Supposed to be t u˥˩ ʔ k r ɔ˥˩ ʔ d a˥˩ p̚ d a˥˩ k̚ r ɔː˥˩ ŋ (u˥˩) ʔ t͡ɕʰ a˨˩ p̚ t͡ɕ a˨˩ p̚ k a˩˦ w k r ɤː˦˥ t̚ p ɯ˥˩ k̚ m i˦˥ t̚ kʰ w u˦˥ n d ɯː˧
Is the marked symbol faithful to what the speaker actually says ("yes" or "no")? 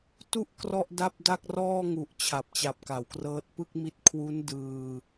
no